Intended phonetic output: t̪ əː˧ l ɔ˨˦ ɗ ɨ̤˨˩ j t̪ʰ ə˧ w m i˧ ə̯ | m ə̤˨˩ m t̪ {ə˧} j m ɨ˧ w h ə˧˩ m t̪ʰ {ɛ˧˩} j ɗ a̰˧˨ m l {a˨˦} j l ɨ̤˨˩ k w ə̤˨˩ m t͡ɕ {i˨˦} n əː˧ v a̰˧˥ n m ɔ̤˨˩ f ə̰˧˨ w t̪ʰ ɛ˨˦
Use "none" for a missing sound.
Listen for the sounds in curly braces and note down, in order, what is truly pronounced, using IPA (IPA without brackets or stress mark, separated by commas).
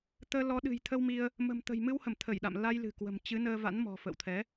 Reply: ə̤˨˩, ə˧˩, a˧, ɨ˨˦